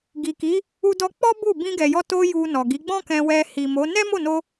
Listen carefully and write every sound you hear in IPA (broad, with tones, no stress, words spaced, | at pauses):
ɡi˨ki˨˦ | u˧dɔ˧k͡pɔ˦ bu˦˨ bĩ˧ɡɛ˨jɔ˧ to˧ ju˧nɔ˨ɡi˨˦ ɡ͡bɔ̃˦kɛ̃˧ wɛ˧hi˨mo˨˦ nɛ˦mo˦˨no˧